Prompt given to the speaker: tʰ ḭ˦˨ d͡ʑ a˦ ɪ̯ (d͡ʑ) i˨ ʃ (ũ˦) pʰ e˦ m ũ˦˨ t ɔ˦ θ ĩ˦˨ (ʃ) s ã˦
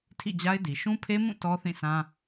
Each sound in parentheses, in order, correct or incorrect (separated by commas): incorrect, correct, incorrect